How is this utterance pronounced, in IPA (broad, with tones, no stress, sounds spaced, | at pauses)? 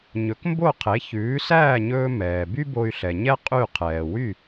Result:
ɲ ɵ˩˥ k m b o˥˩ qʰ e˩˥ ç ʉː˩˥ s æː˥˩ ɲ ɵː˧ m ɛː˩ b y˥ b o˧ y̯ ɬ ɛ˩ ɲ ɛ˥ qʼ y˥˩ qʰ ɛː˩ w y˥˩